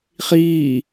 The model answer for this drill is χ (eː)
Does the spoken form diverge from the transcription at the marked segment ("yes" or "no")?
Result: yes